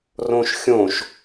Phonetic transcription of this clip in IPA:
rõʃxʲõʃ

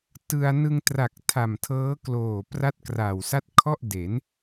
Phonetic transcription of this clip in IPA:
tɯ˧a̯ nɯ˧ŋtra˨˩k̚ tʰa˨˩mtʰɤː˦˥ kloː˨˩ pra˥˩t̚kraː˨˩wsa˥˩t̚ kʰɔ˥˩ʔde˩˦n

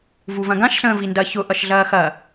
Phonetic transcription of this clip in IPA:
vuvɐ̃ɡãʃ ɬə̃ːvindɐ çʊ ʔʌʃɮɐːxɐ

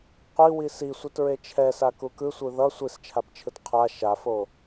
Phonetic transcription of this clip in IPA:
qʷiwi sisʷɯtɹe t͡ʃʰɛsa kukɯsʷɯ ðʌ sʷist͡ʃʰapt͡ʃʰɯt qʰa ʃafo

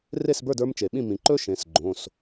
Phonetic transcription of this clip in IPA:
re˥˨sbə˞˥˨d ə˞˦˥mt͡ʃe˩ɓĩ˥˨ mĩ˩ǃɵ˦˥ ʃẽ˩˧˩sɡ͡ǃõ˩˧˩s

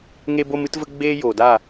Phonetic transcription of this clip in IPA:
ŋe˦bo˦m ɨ˦tvə˦ ɡ͡beː˦ joː˨daː˦˨

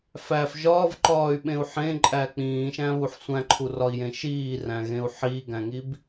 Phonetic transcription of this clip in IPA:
fæf ʒɒːvǃɒːy̯ɓẽu̯ ħẽǃʼæ k͡pĩːʃæ̃βuħ sʷæ̃ǃʰurɒi̯jẽ ʃiːræ̃ɣẽu̯ ħiːɡæ̃ŋib

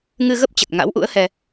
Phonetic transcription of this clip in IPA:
ŋɨ˧ɣə˦˥p̚t͡ɕə˨˩t̚ ŋa̰˧˥wʔṵ˧˥ə̯hɛ˧

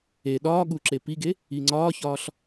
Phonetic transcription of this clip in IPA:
e ɗɒːɠuǁe piɡe | iŋ͡ǀɒːçɒːɬ

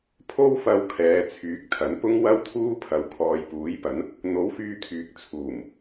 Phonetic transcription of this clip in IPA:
pʰo˥wfɐ˧w kʰɛː˨˧t͡sʰyː˨˥k̚t̪ʰɐ˨˥n pʊ˥ŋwɐ˥wt̪ʰuː˥pʰɐ˨w kʰɔː˨jpuː˨˥jpɐ˨˥n | n̪o˨˥wfyː˧kʰyː˨k̚ t͡sʰuː˨˩m

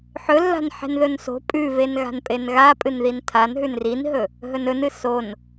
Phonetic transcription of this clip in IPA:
ħɵlːa̤n ħe̤nðɵnso̤ pʼʉvenɣa̤npʼen ɣa pʼɨnðintʰanɦʉn rinɦɵ | ɦɵnɵnɨ son

